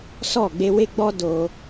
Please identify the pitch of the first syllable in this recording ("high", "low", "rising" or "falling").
falling